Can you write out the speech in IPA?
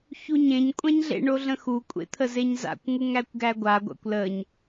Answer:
çuɲẽɲ kʷʼæ̃ɲɮḛ ɳoɮə̃xu kʷʼḛt̪ʰəzeɲza̰kʷ ŋuŋækʷɡæɡʷa ɡʷa̰kʷləɲ

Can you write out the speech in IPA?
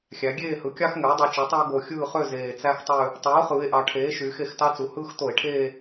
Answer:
xʲæ˩˧ɡʲeː˦˨hɯ˩˥kʲɑ˦x ŋø˩˥o̯dˤy˨˩t͡ʃe˩˥tˤø˦o̯ ɡo˨˩xʲɯː˦˨χø˦˨ zeː˨˩t͡sæ˦xtˤø˦˨ | tˤɯː˩˥o̯χɯː˩˧e̯ʔɑ˩˧ ʈʰeː˩˥ ʃyː˩˧xe˨˩xtɑ˦t͡su˩˧ hɯː˦xto˧˩˧e̯ʈʰeː˦˨

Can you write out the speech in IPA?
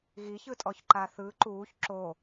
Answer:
ɣiçɯtʼɔç ǃaθɯ ǃuːç ǁo

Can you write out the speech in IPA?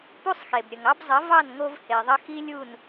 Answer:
pu˦sˤxe˨bɾʲə˨ŋɑ˦b zˤə˨˦vɑ˦˨nŋo˧v he˨ðˤə˦ xi˦lʲu˦˨n

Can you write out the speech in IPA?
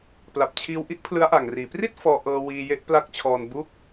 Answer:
pla˨˩p̚t͡ɕʰiː˧wʔi˥˩ʔ pʰlɯ˦˥a̯ʔa˨˩ŋriː˩˦ pri˥˩t̚ fɔː˧ʔɤː˧ wiː˧je˦˥ʔpla˦˥k̚t͡ɕʰɔː˧n bu˦˥k̚

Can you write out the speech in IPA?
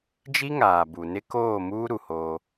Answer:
d͡ʒi˦ŋaː˨bu˨nɪ˦ koː˦˨muː˦ ɾu˨hoː˦

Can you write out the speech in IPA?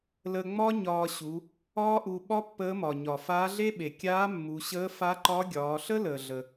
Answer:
lə˧ŋ͡mɒ˥ɲɒː˧ɕu˩˧ | ɒː˥ʔu˧ ɓɒ˥pːəː˧˥mɒ˩ ɲɒ˩faː˧˥ɮe˥ɓe˩ kʲaː˧˥ mːu˩˧ ɕəː˧˥ fa˧˥ǃɒ˧˥ɡʲɒː˩˧ɬə˥ ləː˩ ɮə˩

